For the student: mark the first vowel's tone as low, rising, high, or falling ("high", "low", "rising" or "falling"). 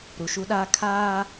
low